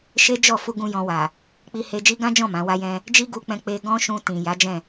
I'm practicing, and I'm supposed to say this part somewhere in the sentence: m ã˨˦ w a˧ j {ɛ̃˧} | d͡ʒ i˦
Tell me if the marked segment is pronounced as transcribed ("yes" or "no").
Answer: yes